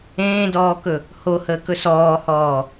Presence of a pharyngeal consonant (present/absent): absent